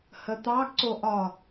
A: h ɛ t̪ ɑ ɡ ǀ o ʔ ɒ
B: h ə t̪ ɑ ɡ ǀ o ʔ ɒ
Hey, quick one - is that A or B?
B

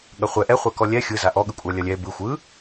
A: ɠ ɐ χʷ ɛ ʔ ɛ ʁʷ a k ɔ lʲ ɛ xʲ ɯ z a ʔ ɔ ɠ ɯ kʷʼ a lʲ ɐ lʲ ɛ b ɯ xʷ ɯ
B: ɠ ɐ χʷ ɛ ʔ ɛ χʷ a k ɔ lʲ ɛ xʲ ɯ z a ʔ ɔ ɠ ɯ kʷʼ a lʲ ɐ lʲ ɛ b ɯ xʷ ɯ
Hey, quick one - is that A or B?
B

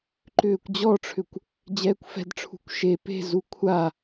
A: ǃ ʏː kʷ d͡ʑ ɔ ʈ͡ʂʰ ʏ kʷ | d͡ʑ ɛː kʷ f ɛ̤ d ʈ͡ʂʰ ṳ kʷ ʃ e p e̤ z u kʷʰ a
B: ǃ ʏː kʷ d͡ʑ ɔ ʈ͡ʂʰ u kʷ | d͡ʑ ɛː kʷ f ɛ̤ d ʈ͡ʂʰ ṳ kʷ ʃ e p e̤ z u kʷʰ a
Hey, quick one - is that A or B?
A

